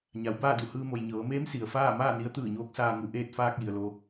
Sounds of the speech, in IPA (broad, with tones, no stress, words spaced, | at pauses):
ɲa˩˧wbaː˥˨du˧˩ hɯː˧mo˩j ɲɤː˩˧meː˧˥m si˩ə̯faː˥˨ maː˥˨ni˧˥ə̯t̪ɯː˧˩ɲoː˧˥k̚ saː˧ŋu˧ ʔeː˧t̚faː˧k̚ ji˩ə̯lo˧